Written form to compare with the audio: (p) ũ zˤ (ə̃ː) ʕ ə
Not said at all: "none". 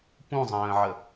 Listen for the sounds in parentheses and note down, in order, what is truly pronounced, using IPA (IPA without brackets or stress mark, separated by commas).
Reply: p, ə̃ː